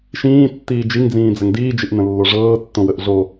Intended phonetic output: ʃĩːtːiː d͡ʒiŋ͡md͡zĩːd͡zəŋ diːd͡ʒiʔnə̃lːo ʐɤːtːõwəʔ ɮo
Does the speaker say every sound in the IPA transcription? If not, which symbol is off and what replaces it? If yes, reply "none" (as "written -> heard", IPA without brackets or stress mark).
ŋ͡m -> ŋ